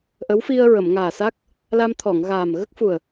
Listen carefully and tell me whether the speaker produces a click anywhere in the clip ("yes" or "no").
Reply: no